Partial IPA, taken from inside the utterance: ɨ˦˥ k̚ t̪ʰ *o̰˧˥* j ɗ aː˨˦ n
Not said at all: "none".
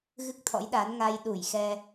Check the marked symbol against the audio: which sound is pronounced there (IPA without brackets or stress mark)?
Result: ɔ̰˧˥